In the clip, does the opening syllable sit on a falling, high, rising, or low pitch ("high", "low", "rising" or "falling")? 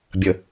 low